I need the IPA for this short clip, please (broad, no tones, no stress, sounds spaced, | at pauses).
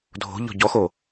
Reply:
dʱ o̤ ʎ ɔ̤ ɟ ɔ x o